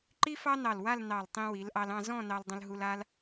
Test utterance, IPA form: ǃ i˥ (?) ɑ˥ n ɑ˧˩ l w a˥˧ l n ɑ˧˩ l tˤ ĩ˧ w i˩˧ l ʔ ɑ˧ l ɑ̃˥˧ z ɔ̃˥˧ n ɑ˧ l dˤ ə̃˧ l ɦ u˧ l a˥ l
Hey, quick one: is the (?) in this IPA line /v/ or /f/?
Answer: f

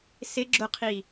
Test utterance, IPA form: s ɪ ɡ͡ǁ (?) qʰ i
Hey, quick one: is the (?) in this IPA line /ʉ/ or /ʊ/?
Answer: ʊ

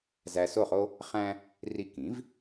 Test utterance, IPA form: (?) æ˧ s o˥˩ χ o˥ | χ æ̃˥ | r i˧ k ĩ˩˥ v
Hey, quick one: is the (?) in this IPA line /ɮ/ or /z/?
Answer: z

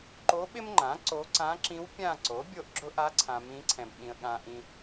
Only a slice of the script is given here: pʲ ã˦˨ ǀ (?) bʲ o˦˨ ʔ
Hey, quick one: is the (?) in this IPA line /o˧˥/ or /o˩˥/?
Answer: o˩˥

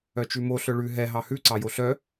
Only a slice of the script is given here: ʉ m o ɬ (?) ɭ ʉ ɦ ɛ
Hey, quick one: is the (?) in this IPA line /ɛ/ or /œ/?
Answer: œ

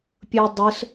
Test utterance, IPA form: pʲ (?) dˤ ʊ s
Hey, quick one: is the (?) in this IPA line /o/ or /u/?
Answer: o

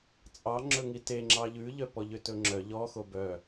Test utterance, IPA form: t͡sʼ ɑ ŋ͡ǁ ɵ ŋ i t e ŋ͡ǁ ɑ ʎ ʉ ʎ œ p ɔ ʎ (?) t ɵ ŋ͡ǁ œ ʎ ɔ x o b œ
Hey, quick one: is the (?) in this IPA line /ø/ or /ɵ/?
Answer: ø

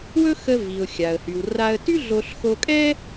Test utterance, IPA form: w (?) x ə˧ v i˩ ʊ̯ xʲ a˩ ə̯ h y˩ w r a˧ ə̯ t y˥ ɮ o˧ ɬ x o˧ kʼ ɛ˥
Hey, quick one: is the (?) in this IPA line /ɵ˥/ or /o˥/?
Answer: ɵ˥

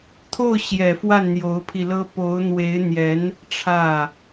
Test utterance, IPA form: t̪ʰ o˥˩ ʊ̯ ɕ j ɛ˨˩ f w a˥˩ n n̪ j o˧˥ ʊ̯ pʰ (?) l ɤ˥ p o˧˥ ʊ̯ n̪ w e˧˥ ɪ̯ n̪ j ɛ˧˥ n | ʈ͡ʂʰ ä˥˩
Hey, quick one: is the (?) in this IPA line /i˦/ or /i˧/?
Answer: i˧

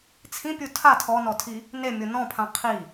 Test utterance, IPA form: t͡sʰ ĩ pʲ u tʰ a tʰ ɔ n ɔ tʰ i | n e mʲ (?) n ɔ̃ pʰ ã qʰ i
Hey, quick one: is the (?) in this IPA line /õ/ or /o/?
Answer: o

